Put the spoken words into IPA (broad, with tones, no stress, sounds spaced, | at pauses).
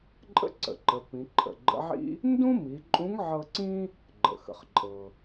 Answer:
ǃʼ ə̰˥ ǀ ə̰˩ ǃ ə˩˧ p ĩ˩˧ ǃʰ ə̰˩ ɡ͡ǃ ə̰˧˥ ʕ ḭ˥ | n d ũ˥ m i˩˧ ǃʼ ũ˧˥ ŋ ʕ ɤ˧ ǀ ĩ˥ | ɡ͡ǃ ə̰˩ x ə̰˩ χ ǃʼ ɤ˩